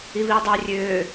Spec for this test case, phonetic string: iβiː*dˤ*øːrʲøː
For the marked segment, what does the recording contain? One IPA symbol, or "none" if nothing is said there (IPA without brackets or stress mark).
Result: dˤ